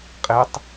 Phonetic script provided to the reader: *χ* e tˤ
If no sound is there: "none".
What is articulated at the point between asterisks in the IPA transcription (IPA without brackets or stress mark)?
qʼ